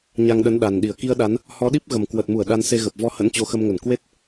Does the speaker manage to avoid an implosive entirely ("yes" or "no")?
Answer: no